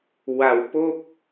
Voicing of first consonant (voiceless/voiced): voiced